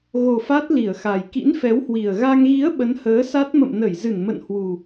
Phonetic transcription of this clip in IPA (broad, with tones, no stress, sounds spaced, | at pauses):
ɣ o˨˩ f a˦˥ t̚ l i˧˩ ə̯ x a˨˩ j k ḭ˧˥ n f ɛ˨˦ w h w i˨˩ ə̯ ɣ a˧ ŋ ɣ i˨˦ ə̯ ɓ ə˨˦ n h əː˨˦ s a˦˥ t̚ m ə̰˧˨ m n ə˧˩ j z ɨ˧˩ n m ə̰˧˨ n h w u˨˩